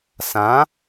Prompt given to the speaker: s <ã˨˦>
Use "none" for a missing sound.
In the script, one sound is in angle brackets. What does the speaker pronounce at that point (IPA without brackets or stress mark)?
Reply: ã˨˦